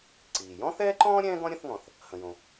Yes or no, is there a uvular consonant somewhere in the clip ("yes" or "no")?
no